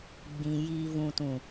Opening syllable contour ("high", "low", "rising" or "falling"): low